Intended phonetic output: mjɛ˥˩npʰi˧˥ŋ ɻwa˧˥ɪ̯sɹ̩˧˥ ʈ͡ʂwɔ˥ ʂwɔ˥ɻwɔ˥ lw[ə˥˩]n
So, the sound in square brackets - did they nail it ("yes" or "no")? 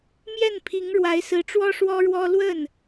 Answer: yes